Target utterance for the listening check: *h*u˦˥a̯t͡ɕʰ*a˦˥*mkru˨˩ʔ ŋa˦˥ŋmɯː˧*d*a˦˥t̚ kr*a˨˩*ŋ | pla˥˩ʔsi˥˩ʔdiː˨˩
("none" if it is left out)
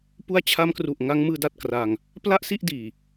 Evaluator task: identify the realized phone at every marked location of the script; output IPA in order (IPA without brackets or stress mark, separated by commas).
p, a˦˥, d, a˧